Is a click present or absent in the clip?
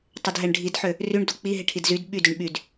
absent